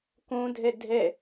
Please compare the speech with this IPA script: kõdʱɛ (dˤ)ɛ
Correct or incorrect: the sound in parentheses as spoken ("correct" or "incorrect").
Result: incorrect